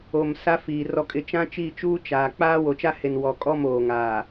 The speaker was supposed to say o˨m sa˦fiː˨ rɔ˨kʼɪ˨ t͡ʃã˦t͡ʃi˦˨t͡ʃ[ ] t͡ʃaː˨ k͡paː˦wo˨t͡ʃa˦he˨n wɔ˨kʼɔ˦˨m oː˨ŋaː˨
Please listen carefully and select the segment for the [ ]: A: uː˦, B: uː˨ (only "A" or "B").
A